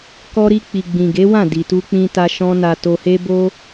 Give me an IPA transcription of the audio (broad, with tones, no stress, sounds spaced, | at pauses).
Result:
k ɔ˧ ɾ i˧ k͡p i˨ ɡ͡b ĩ˨ ɡ e˨˦ w ã˦˨ d i˨ t u˧ k͡p ĩ˧ t a˧ ʃ ɔ̃˦ n a˧ t o˧ h e˦ b o˦